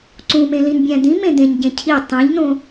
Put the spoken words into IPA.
ǀũmẽ lĩnbʲæ̃d̪ĩ mẽd̪ẽɲɟẽ cʰi tˤĩʎnõ

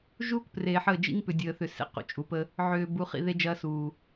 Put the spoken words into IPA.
ʒuː˦k preː˨ħəː˦˨ d͡ʒḭ˦ŋpʏ˨dʲəː˨θʏ˨ sḛ˨ qṵ˨t͡ʃʼu˨pə˦ | ʕʏː˨ bu˨χḭ˦˨ ðe˦d͡ʒɐː˦suː˨

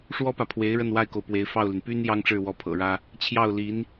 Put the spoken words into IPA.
ʂwɔ˥pä˨pʰwe˧˥ɪ̯ ɻə˥˩nwa˥ɪ̯ko˨ʊ̯pwe˧˥ɪ̯ fɑ˥˩ʊ̯ly˩n py˥n jɑ˥ŋʈ͡ʂɻ̩˥˩wɔ˧˥ pʰɤ̰˨˩ɻä˥ | t͡ɕʰjɑ˥˩ʊ̯li˧˥n

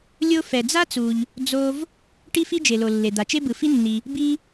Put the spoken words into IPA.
lʲo˥ fɛ˩d͡za˥t͡su˩ʎ | d͡zo˧v | ʈi˥fi˥d͡ʒe˩lo˩ lːe˩d̪a˩t͡ʃe˥ bɯ˩fi˥nːi˩ | bi˥

